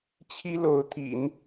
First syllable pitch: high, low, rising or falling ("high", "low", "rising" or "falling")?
high